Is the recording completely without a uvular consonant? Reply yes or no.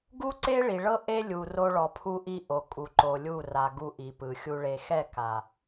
yes